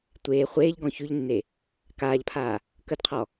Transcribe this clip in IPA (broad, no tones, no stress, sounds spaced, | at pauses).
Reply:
tʷ eː χʷ eː ʎ ɡ ɔ̃ ç y ʎ nː e | k aː ʎ pʰ aː | k ə d qʰ ɔ